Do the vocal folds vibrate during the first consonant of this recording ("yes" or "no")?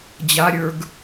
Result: yes